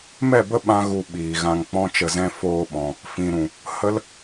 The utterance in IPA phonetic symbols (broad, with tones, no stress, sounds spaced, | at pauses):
m ɛ˦˨ b ə˦ ɓ ã˦ ɣ u˧ ɓ iː˨ ɣ ã˧ ŋ k͡p ɔ̃˦ t͡ʃ ə˧ z ɛ̃˦ f oː˧ ɓ ɔ̃˨ | f ĩ˨ ɾ ũ˨ | h ə˦ l